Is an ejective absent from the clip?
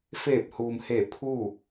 yes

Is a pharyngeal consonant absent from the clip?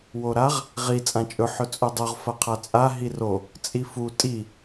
no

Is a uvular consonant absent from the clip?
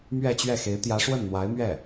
yes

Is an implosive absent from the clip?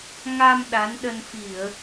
no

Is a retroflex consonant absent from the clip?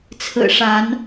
no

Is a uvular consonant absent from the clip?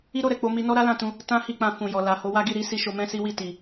yes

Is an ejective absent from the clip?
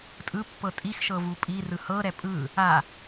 no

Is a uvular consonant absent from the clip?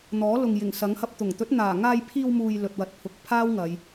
yes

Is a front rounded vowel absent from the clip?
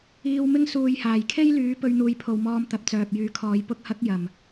no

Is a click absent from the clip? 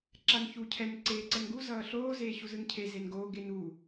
no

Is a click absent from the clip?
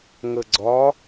no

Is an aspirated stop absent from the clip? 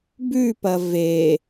yes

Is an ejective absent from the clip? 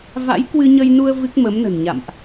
yes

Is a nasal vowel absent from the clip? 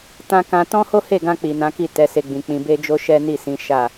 no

